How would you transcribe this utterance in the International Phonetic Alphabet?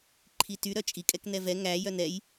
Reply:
ǃʰ i t y ɾ œ t͡ʃʼ i kʼ ɛ k n ɛ v ɛ ŋ æ j œ n ɛ j

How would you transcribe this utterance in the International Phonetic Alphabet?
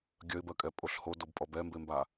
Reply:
ɡʲ œ ɪ̯ b ɜ kʼ ɛ pʼ o ɬ h o d o b pʼ ɔ b ɛ m b e m b a

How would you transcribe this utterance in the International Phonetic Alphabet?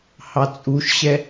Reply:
h ɑ t͡sʼ u ʃ ɕ ɛ

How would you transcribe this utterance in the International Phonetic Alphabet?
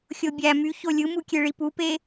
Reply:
xʲ o bʲ æ m y ç o lʲ ɯ m u kʲ e ɭ i p u p e

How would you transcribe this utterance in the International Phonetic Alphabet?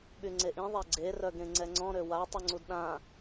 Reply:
ɓ y ŋ͡ǀ e ʔ ĩ ðˤ ɛ ɡ͡ǀ e r œ ɡ ẽ ŋ͡ǀ ɛ ŋ͡ǀ ɔ̃ ɾ ø w a tˤ u ŋ͡ǀ u d ɗ ã

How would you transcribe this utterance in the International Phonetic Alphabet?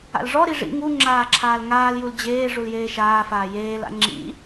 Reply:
a̰ l ʐ ɔ ɾ i ʐ ḭ ŋ u ŋ͡ǁ aː ǁʰ aː l ŋ aː l j u l d͡ʑ eː ʐ u l j eː ʃ aː f aː j eː l a̰ ŋ͡ǁ ḭ

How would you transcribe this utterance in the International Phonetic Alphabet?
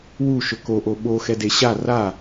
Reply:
w u ʃ ɵ k o ʔ o ɓ o x ɛ d e ɕ a r a

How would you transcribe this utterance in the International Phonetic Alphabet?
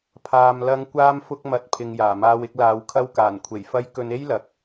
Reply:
pʰ aː˧ m l ɐ˨˧ ŋ kʷ aː˧ m f ʊ˧ k̚ m ɐ˨˥ t̚ pʰ ɪ˨ ŋ j aː˨˩ m aː˧ w ɪ˧ k̚ l aː˨˧ w kʰ ɐ˧ w k aː˨˩ n kʷʰ e˨˩ j f ɐ˧ j k ɵ˧ n e˥ j l ɐ˨˥ k̚

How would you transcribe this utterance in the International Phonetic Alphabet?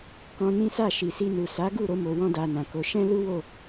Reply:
k ɔ̃˧ n ĩ˦ s a˦˨ ʃ i˨ s i˧ n u˨ s a˨˦ ɡ u˦˨ ɾ o˧ m o˨ w ɔ̃˧ d a˧ n ã˨ k o˨˦ ʃ ɛ̃˦ l u˦ w o˦˨

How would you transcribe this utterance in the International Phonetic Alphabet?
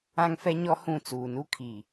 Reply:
ã˦ ŋ f ɛ˦ ɲ ɔ˦ h ũ˦˨ t͡s uː˨ n u˦ kʰ i˨

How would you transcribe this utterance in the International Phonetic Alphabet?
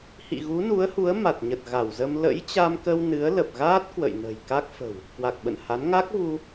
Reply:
h ḭ˧˨ ɣ u˨˦ n u˨˦ ə̯ h u˨˦ ə̯ m a˨˩ t̚ ɲ ə˨˩ t̚ ɣ a˧˩ w z ə˧ m l ə̰˧˥ j t͡ɕ a˧ m k ə˧ w n ɨ˨˦ ə̯ l ə˨˩ p̚ ɣ aː˦˥ t̚ k w ə̰˧˨ j n ə̤˨˩ j k a˦˥ k̚ f ə̤˨˩ w | k w a˨˩ k̚ ɓ ə̰˧˨ n h a˨˦ n ŋ a˦˥ k̚ v u˧

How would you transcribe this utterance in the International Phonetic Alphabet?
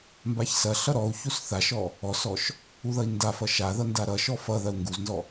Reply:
m b a ç s ɐ ɬ ʌ ɾ ɔ u̯ ç u s θ a ʃ ɔ | ɔ s ɔ ʃ | u ð ʌ i̯ n d a f ʌ ʃ a ð ʌ n d a ɾ ʌ ʃ ɔ f ʌ ð ɐ u̯ ŋ ɡ u z n z ɔ

